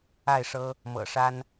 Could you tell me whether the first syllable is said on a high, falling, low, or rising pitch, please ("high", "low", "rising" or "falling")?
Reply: falling